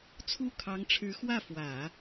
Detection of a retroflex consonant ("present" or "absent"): present